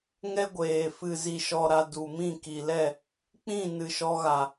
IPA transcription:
ŋ ɛ˦ ɡʷ eː˨ f ɨ˨ z i˨ ʃ ɔ˨ ɾ a˨ d u˨ m ĩ˦˨ k i˨ l ɛ˦˨ | k͡p ĩ˦˨ n ɨ˨ ʃ ɔ˧ ɣ a˨

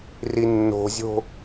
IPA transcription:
r i nː o̤ zʲ o̤

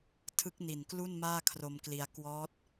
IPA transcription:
tʰ ɯ˦˥ k̚ n i˨˩ n k l u˥˩ n m aː˥˩ kʰ r o˧ m k l i˧ a̯ k w ɔː˦˥ t̚

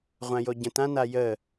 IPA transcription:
ʁʷ ã j o ɟ ə̃ t ã n a j ə

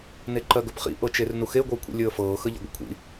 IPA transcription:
n e ǃ ɜ ɡ ɵ p χ ḭ ʔ ɤ t͡ʃ e r n u x e ɡʷ əː kʷʰ ḭ lʲ əː f ɤː x ə ʎ ə̰ ɡʷ ə̰ kʷʰ ḭ

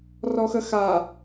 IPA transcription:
r ɔ x ə x a

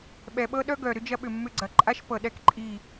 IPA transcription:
ɓ ɛ˨ ɓ ɤ˦ ɗ œ˦ ɡ œ˨ ɾ ʏ˦ d͡ʒ ɐ˦ ɓ ʏ˨ mː ʏ˦ ɡ͡ǀ ɐ˨ ǃʼ a˦ ʃ p ɤ˨ ɗ ɛ˦ k ǃʼ i˦˨

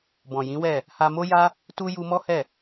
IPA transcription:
b ɔ̃˨ j ĩ˨˦ w ɛ˦˨ | h a˧ m o˦ j a˦ | t u˦ j u˦ m ɔ˦ h ɛ˦˨

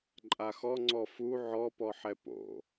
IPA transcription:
ǃʼ a x ɔ ŋ͡ǀ ɔ f u ʕ ɔ p ɔ ħ ɛ p o̰

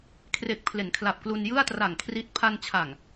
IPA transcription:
kʰ r e˨˩ k̚ pʰ l e˩˦ n kʰ l a˨˩ p̚ k l u˧ n j ɯ˥˩ a̯ t r a˨˩ ŋ kʰ r i˦˥ t̚ pʰ a˧ n t͡ɕʰ a˨˩ ŋ

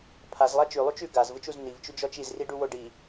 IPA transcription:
pʰ a z lˠ a t͡ʃ ʉ lˠ u t͡ʃ ʉ ɡ a z v ɯ t͡ʃ u z n i v t͡ʃ ʉ d͡ʒ ɔ t͡ʃ i z r i ɖ u w o ɖ i

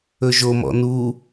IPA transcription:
ɵ ʒ o m ɔ̰ n u

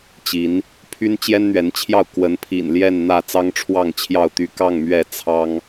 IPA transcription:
t͡ɕ i˨˦ n | pʰ y˦ n t͡ɕ j ɛ˦ n n̪ ɥ ɛ˨˦ n t͡ɕʰ j ɑ˥˨ ʊ̯ k w ə˨˦ n pʰ ḭ˨˩ n l j ɛ˥˨ n n̪ ä˥˨ t͡s ɑ˦ ŋ ʈ͡ʂʰ w ɑ˥˨ ŋ t͡ɕʰ j ɑ˥˨ ʊ̯ t̪ y˦ k ɑ˥˨ ŋ m ɥ ɛ˥˨ t͡sʰ ɑ˦ ŋ

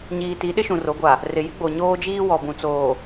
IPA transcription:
ɲ iː˨ t i˨˦ ɗ ɪ˦ ʃ ũ˨ r o˨˦ ɡʷ a˨ | r ɪ˨ j ɪ˦ ɡ͡b o˨ ɲ oː˦ d͡ʒ iː˦ w ɔ˨ b ũ˨ t͡s oː˨

